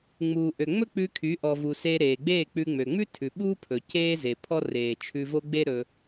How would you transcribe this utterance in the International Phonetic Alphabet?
ŋ͡m uː˨ ʔ ø˨ ŋ͡m ɵ˦ k͡p ʉ˧ kʰ y˨˦ ʔ ɔ˨ v u˨ s eː˧ ɾ eː˨ ɡ͡b eː˦˨ k͡p ʉ˧ ŋ͡m ø˨ ŋ͡m ʉ˦ tʰ ʉ˨ ɓ uː˦ pʰ ɵ˨ c eː˦ z e˨ pʰ ɔ˦ r eː˨ t͡ʃʰ ʉ˧ v o˦ ɡ͡b e˦ ɾ ɵ˧

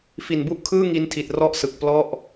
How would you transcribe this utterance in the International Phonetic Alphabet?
f i˨˩ n b u˦˥ ʔ kʰ ɯː˥˩ ŋ i˧ n tʰ i˨˩ t̚ r ɔ˥˩ ʔ s ɯ˨˩ k̚ p l ɔ˥˩ ʔ

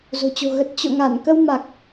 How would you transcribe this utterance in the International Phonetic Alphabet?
z o̤˨˩ t͡ɕ o̤˨˩ ɣ ə˨˩ t̚ t͡ɕ o̰˧˨ ŋ a˧˩ n k ə˧ w m a˨˩ k̚

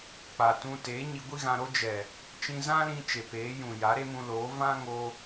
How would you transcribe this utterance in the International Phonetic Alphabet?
k͡p a˨ t ũ˧ t e˨˦ ɲ i˧ ɡʷ i˦ ɣ ã˧ ɾ o˦ d͡ʒ ɛ˨ | t͡ʃ ĩ˧ z ã˦ l ĩ˧ t͡ʃ e˨ p eː˨˦ j ũ˨ j a˨˦ ɾ e˦ m ũ˧ l oː˨˦ v ã˦ ŋ o˦

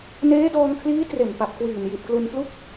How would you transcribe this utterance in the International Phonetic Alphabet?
n eː˦˥ d ɔː˧ ŋ kʰ l iː˦˥ t r e˨˩ n p a˨˩ p̚ k w iː˨˩ n j i˨˩ t̚ k l u˧ n p l u˥˩ k̚

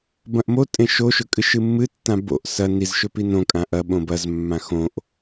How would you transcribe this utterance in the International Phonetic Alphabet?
b ɐ̃ ʔ m o tʼ ẽ ʃ o ʃ ɵ kʼ ɨ ʃ ɨ mː ɨ tː ã b o̰ ʔ s ɐ n i z ʃ ɵ p i n õ kʼ ã ʔ ɐ ɓ õ b ɐ z mː ã x õ ʔ

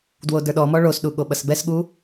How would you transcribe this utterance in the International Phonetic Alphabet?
d w o d ə˞ ɗ ɔ m ɔ ɭ o s ɗ u ɠ o ɓ ɐ s b ɛ s ɠ u

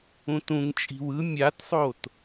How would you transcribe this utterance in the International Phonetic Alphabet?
ũ t ũ ŋ t͡ʃʼ i̤ w ɯ mʲ a t sˤ o t

